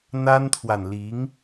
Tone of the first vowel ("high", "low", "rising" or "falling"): high